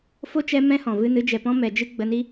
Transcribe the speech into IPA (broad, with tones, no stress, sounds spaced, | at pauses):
f o˦ t͡ʃ ɛ˧ m ɛ̃˦ h ɔ̃˨ v ɨ˧ n ɨ˨˦ d͡ʒ ɛ˨ p ɔ̃˦ m ɛ˨ d͡ʒ ɨ˦ ɡ͡b ə˧ n i˦